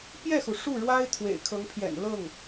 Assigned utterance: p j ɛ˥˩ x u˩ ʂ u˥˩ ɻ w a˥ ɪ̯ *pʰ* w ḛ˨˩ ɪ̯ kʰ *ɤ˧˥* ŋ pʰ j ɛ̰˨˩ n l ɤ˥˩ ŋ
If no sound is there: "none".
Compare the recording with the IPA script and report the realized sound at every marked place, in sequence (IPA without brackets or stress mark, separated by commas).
t̪ʰ, ɤ˧˥